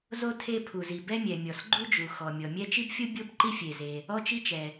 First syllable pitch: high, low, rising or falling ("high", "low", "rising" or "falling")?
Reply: high